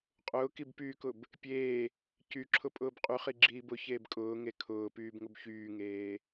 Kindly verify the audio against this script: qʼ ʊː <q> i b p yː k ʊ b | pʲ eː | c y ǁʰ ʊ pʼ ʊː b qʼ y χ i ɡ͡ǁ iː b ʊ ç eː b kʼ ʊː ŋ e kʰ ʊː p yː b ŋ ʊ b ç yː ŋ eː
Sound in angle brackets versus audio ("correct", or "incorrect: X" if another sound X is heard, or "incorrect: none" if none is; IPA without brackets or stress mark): incorrect: k